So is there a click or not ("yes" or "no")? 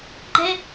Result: yes